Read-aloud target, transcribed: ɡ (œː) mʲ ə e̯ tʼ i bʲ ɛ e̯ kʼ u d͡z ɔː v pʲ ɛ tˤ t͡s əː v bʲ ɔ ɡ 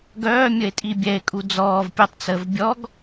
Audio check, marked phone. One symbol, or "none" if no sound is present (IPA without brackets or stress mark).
œː